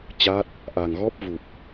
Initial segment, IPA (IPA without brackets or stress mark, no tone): t͡ɕ